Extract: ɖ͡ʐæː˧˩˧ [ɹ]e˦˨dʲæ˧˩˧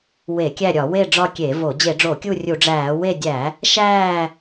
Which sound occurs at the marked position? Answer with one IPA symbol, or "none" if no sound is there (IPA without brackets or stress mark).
w